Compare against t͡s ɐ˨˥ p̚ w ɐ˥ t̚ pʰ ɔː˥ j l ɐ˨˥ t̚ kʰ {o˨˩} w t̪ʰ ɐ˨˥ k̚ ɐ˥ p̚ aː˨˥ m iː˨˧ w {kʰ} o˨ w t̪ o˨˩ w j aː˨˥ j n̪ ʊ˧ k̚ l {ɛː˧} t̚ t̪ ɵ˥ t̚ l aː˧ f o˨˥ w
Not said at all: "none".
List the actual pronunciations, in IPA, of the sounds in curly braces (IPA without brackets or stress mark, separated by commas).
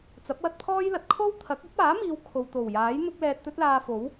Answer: o˥, kʰ, ɛː˧